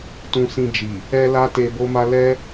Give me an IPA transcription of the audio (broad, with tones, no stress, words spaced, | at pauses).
tũ˧sĩ˧ d͡ʒi˨ | ɛ˦la˦te˧ bo˦ma˦ lɛ˦